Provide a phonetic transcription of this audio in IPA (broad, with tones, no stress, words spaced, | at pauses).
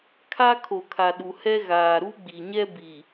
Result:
kʰa˦ kʰo˨kʰa˨ ɗu˨hɛ˦ ɣaː˨ ɾu˦ɡ͡bi˨ɲɛ˦ bi˨